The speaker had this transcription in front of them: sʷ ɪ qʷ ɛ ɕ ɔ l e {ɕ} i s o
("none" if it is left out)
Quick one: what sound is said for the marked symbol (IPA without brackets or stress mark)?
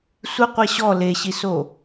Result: ɕ